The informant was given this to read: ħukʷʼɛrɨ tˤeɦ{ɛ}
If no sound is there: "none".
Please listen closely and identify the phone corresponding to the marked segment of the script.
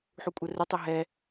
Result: ɛ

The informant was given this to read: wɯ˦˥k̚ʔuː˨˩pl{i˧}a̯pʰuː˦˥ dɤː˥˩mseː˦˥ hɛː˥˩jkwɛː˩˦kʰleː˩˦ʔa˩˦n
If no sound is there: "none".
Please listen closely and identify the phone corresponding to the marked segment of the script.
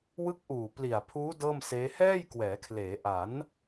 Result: i˨˩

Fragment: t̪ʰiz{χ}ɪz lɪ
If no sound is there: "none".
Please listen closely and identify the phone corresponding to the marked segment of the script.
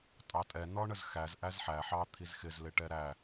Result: x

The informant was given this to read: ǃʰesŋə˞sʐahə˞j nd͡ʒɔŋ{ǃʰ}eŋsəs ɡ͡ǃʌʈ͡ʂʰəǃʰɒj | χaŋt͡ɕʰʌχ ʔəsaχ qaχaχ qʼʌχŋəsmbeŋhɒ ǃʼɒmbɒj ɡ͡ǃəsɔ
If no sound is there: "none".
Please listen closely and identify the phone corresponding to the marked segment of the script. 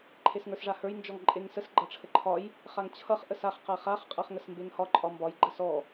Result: ǃʼ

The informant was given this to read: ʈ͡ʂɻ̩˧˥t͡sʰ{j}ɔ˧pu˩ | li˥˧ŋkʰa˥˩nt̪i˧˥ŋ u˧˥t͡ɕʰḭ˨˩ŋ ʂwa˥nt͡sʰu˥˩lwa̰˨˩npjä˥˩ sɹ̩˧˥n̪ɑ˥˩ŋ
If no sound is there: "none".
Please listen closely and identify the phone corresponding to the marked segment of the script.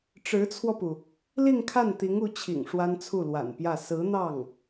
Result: w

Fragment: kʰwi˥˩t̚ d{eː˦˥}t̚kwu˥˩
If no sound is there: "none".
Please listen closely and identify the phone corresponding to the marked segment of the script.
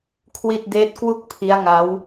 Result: eː˦˥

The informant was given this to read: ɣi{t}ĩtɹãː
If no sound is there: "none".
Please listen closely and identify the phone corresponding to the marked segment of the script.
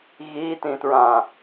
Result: t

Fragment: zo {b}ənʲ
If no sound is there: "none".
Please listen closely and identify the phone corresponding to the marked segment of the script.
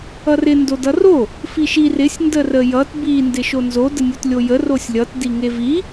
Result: d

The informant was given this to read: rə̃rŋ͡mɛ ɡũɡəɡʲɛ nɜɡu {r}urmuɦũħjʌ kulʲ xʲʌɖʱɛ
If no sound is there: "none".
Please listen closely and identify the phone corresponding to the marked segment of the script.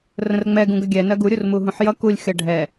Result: ɾʲ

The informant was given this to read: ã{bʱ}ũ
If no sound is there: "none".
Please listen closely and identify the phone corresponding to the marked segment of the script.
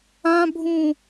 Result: bʱ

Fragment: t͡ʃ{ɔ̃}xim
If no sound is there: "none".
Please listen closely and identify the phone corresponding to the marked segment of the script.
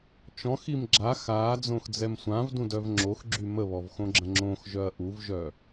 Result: ɔ̃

